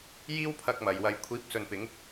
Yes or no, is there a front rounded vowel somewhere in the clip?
no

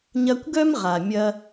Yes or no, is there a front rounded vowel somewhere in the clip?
yes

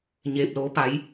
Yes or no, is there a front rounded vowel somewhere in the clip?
no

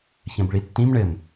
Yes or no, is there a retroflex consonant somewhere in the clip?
yes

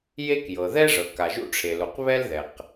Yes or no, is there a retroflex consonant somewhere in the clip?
yes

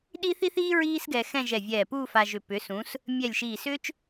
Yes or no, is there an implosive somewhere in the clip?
yes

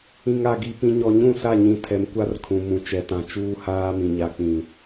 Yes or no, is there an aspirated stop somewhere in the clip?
yes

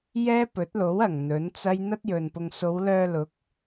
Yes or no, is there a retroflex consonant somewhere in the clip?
no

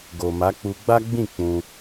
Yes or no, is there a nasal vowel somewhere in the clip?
yes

